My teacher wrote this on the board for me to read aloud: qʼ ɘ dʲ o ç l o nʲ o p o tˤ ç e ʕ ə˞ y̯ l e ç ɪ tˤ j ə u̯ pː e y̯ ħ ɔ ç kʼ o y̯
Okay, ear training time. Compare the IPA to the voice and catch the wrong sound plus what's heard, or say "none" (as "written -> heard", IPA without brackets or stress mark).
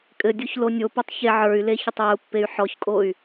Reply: qʼ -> kʼ